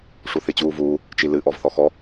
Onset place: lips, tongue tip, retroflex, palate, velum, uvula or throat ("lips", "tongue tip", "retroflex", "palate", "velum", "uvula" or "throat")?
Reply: retroflex